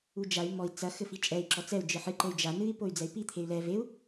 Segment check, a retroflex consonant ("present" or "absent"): absent